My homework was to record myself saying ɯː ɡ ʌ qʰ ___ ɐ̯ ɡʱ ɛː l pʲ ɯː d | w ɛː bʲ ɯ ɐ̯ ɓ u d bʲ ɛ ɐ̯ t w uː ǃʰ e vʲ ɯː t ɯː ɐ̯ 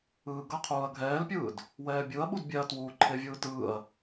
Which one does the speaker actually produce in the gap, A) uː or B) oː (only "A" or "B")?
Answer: A